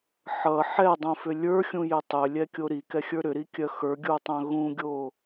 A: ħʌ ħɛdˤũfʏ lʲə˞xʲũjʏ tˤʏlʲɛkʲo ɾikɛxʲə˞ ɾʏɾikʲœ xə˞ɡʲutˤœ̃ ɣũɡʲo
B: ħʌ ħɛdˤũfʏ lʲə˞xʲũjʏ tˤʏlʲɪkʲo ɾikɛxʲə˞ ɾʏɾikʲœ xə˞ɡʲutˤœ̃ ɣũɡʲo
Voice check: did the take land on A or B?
A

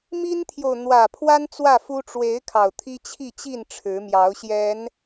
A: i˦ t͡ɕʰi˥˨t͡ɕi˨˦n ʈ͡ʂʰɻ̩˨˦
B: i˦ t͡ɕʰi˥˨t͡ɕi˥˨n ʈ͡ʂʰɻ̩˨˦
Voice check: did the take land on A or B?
B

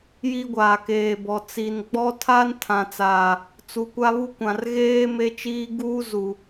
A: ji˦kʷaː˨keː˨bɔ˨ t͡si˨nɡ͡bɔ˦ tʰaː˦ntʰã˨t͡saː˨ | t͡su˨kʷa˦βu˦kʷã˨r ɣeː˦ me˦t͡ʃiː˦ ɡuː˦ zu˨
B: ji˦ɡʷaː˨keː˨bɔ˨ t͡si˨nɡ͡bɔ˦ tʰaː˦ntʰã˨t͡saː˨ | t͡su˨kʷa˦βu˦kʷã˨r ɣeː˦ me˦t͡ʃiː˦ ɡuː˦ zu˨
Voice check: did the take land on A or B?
B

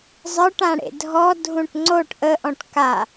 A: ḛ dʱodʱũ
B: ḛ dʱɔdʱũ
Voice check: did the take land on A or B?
B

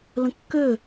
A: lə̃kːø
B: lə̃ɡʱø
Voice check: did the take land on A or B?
A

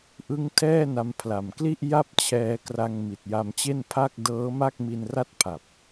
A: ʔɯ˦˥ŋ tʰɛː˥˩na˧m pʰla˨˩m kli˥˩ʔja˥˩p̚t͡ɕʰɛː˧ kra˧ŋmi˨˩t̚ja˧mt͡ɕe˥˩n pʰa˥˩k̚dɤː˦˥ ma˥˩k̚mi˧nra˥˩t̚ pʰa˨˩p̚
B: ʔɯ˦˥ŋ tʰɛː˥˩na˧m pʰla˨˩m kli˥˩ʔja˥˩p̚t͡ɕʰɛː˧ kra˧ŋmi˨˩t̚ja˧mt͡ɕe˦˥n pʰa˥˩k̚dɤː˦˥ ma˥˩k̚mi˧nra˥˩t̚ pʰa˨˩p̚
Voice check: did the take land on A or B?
A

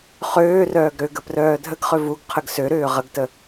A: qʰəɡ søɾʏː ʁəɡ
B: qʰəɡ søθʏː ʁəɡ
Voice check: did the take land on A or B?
A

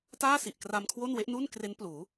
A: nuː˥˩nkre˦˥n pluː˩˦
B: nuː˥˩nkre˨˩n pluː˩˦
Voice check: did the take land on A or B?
A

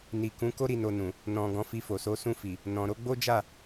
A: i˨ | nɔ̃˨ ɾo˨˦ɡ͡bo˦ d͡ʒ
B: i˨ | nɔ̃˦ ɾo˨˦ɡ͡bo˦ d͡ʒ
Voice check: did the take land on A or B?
A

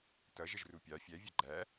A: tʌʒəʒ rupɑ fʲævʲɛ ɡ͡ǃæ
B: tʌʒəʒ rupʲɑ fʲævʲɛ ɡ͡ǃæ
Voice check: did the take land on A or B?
B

